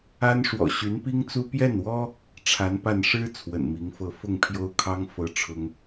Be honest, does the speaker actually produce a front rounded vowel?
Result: yes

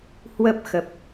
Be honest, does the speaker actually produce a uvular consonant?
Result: no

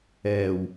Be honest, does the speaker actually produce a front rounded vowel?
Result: no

